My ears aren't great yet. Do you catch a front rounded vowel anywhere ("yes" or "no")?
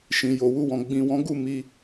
no